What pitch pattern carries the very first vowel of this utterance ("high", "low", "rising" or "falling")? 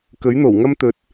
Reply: rising